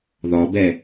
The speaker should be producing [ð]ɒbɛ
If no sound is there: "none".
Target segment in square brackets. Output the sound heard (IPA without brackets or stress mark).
ð